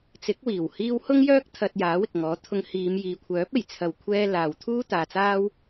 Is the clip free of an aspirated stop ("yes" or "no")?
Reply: no